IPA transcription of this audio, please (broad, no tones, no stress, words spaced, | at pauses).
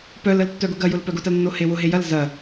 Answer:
pœləl tːœɡʊɡɐjʊl pœɡʊtɐl nːohewʊɦe jɐl zɐ